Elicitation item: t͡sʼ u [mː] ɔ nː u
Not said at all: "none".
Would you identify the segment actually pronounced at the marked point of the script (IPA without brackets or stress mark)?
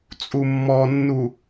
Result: mː